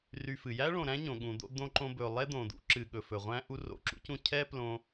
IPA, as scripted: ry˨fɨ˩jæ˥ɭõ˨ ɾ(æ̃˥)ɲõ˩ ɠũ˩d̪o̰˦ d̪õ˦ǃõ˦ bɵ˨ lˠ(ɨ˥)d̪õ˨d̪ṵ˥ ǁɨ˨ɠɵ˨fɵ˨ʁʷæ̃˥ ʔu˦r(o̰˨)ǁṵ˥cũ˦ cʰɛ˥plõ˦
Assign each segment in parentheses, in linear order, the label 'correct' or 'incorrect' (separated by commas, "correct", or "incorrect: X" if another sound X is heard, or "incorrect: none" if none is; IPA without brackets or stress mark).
correct, incorrect: ɛ˥, correct